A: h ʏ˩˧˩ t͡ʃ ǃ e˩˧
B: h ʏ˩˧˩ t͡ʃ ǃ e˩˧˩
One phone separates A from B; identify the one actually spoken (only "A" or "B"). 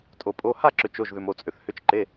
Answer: B